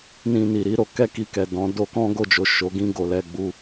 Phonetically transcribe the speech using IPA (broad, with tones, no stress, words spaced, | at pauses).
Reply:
nĩ˧ni˨ɾi˨˦ ɾo˧kɛ˦ki˧kɛ˨ dɔ̃˨˦ do˧kɔ̃˦ ɡo˦˨d͡ʒo˨ ʃo˨˦ ɡĩ˧ ɡo˨ lɛ˧ɡ͡bu˧